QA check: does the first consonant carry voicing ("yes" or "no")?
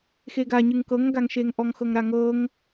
no